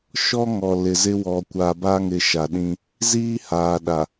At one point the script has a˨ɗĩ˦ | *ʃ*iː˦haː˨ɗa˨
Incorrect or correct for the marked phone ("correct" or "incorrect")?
incorrect